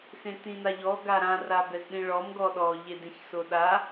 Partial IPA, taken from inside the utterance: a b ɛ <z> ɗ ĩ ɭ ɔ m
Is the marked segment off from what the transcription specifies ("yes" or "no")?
no